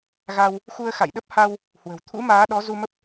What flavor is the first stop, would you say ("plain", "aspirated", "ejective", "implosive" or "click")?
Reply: implosive